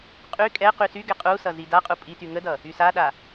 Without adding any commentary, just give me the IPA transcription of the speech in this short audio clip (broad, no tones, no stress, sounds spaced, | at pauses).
qʼ y kʼ ɛ q y s y ɡ ɛ qʼ u s ʌ z i d a qʼ u pʼ i t y ŋ ə d ʌ | y s a ɗ a